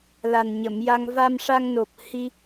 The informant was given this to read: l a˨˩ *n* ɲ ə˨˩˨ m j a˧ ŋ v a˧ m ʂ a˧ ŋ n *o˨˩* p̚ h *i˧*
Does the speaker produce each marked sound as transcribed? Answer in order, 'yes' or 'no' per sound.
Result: yes, yes, yes

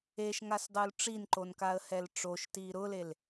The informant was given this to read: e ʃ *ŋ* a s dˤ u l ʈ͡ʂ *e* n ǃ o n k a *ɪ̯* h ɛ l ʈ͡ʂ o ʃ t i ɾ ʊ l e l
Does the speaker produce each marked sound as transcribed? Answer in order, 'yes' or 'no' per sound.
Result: yes, no, no

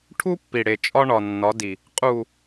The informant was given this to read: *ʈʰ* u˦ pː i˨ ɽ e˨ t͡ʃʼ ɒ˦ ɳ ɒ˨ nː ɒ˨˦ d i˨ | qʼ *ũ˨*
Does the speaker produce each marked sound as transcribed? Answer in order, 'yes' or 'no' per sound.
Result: yes, no

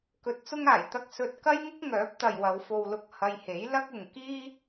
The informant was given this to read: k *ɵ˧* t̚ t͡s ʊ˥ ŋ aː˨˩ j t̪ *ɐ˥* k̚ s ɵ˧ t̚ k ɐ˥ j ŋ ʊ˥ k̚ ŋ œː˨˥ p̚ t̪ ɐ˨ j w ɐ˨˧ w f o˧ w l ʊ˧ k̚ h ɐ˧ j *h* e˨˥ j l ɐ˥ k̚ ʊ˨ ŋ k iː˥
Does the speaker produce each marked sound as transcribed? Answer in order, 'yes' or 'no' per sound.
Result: yes, yes, yes

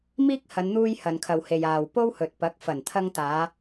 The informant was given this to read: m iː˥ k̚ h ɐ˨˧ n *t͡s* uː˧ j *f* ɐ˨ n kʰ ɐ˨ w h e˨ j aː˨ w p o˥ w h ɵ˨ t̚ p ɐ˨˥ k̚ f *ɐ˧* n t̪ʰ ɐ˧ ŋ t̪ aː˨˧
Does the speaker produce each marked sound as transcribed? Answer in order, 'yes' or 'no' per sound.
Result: no, no, no

